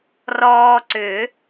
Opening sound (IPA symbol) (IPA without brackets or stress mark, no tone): r